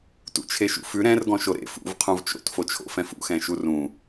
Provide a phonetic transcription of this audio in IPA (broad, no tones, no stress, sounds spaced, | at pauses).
t ṵ t͡ʃʰ e ʃ ṵ f ʉ ɾ ɛ̃ r ɡ ɔ̃ ʃ o ɾ ḛ f ṵ v qʰ ũ v t͡ʃ o̰ t f o t͡ʃʰ o̰ f ɛ̃ f ṵ x ɛ̃ ʃ u r ũ